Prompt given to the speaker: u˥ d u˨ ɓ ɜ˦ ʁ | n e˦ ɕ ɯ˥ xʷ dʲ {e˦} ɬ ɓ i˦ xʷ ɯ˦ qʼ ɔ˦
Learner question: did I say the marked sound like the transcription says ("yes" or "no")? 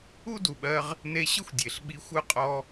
no